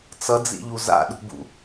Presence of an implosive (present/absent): present